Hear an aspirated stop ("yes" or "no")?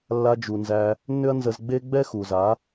no